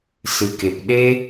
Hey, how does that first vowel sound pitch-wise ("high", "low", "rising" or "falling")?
low